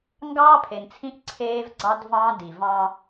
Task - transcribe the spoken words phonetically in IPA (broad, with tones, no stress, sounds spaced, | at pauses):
ŋ ɡ ɑː˦ pʰ e˨ n t͡sʰ ĩ˦ ʔ ǀʰ eː˦ v ɡ͡ǀ ɑ˦ d v ɑ̃ː˦ d i˨ v ɑ̃ː˦